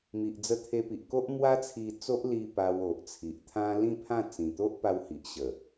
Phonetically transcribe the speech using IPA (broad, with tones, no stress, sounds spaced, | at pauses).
m i˨ ʔ d͡z ə˧ t̪ʰ e˧ p i˨ ʔ k o˦ ʔ m w a˦ t͡sʰ i˧ t͡s o˦ ʔ l i˧ p a˧ w o˨ ʔ t͡sʰ i˨ ʔ t̪ʰ ã˦ l ĩ˥˧ pʰ ã˥˧ t͡s ĩ˨˩ t̪ o˦ ʔ p a˧ w h i˨ ʔ ɕ ə˨˩